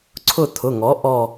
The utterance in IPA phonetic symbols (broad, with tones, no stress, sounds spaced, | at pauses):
ǀʰ ʊ˦˨ t̪ʰ ʊ˩˧˩ ŋ ɔ˩˥ ʔ ɔ˦˨